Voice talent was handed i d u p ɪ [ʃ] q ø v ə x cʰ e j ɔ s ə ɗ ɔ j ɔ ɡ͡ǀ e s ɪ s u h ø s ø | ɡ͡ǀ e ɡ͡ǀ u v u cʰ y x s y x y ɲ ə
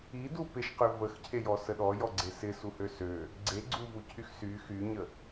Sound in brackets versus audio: correct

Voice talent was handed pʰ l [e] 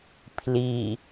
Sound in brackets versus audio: incorrect: i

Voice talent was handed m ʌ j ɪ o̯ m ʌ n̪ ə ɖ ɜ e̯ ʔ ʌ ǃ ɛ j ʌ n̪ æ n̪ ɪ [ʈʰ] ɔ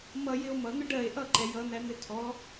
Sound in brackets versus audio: incorrect: tʰ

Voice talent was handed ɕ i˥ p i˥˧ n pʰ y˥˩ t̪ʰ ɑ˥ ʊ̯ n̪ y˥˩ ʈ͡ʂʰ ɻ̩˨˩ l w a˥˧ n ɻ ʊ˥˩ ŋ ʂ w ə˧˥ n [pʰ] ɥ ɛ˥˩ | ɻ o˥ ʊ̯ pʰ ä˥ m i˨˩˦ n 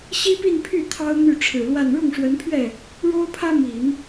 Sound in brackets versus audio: correct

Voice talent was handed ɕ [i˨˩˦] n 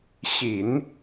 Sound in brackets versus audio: correct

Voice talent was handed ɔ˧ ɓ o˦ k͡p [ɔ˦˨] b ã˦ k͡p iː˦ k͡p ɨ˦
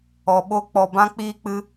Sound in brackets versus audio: incorrect: ɔ˧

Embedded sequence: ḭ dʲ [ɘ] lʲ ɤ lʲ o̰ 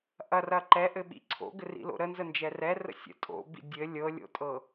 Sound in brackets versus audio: correct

